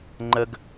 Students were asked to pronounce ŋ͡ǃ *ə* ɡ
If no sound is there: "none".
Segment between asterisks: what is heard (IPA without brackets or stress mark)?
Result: ə